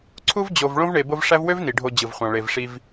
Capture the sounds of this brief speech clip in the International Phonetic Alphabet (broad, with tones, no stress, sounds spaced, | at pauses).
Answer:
ǀʰ u˥ v d͡ʑ o˨ v ɭ õ˥ v ɳ e˨ b o˦ v ʂ æ˥ v w ø˥ v n i˩ ɖʱ o˨ d͡ʑ ɯ˩ v χʷ ɑ̃˩ ɭ e˩ v ʂ i˨ v